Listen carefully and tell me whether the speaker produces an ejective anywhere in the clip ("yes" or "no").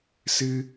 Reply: no